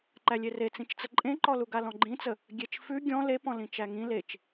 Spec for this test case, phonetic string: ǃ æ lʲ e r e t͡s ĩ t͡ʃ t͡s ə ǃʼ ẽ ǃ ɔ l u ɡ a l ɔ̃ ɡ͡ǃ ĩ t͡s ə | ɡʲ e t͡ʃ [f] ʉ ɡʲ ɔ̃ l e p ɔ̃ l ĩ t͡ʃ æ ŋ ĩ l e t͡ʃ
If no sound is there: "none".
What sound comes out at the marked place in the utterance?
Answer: f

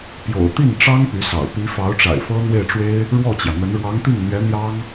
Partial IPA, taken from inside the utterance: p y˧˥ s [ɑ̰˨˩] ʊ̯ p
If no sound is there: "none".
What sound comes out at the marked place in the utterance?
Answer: ɑ̰˨˩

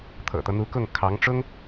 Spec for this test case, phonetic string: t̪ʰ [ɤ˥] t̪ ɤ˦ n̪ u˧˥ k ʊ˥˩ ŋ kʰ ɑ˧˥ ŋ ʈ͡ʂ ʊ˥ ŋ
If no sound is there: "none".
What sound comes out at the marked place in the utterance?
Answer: ɤ̰˨˩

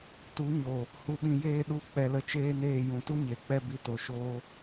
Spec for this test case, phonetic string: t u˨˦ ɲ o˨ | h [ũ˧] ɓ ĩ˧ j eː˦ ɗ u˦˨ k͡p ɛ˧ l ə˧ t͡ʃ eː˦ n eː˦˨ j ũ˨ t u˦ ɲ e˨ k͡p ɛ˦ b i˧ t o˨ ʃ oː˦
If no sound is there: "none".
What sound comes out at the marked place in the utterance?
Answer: u˧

